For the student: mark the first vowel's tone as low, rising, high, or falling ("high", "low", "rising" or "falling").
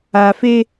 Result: low